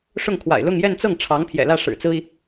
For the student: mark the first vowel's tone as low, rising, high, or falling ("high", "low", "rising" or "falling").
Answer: falling